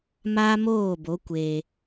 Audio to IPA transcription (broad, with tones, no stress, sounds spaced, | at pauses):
m a˦ m oː˦˨ b o˨˦ kʷ e˧